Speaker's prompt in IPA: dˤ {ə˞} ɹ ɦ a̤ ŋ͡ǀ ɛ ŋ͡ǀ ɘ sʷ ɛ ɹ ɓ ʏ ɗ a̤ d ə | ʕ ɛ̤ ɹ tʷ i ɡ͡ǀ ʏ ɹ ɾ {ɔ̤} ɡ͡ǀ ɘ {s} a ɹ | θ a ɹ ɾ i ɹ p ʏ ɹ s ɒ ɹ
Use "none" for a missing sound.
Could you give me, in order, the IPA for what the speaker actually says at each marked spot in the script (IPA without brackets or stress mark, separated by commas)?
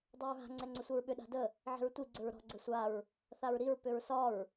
ə˞, ɔ̤, sʷ